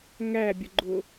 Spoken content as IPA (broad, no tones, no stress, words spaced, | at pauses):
ŋæbʲʊɡ͡ǃʊ